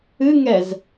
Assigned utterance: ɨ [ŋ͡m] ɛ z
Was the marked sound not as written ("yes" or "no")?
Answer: yes